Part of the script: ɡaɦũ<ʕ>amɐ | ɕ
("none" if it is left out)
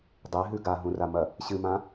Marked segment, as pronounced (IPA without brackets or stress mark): r